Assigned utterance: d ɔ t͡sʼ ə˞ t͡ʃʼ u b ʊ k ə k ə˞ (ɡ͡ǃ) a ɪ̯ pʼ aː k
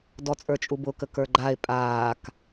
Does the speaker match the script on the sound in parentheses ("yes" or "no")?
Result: yes